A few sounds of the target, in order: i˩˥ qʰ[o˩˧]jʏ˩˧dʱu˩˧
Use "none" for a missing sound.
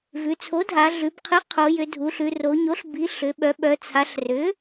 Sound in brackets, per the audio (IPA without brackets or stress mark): o˩˧